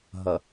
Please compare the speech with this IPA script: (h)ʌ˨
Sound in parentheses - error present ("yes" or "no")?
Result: yes